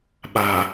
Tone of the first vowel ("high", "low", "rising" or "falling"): low